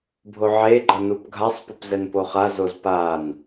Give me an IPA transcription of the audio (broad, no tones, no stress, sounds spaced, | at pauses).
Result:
bʱ o ʕ e ɡ͡ǃ ʌ n u p ɡʱ a sˤ p o p z ɛ n p o χ a z o z p a n